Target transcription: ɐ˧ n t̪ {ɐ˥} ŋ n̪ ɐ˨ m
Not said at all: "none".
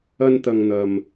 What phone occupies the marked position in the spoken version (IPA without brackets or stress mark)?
ɐ˨